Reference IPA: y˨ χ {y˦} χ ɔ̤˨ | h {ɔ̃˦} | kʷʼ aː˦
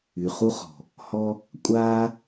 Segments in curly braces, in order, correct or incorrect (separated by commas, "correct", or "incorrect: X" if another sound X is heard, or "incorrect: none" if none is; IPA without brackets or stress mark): incorrect: u˦, incorrect: ɔ˦